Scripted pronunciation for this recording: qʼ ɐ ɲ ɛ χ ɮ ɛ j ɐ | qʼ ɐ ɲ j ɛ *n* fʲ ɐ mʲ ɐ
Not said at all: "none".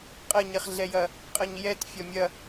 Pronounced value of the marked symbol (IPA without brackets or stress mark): t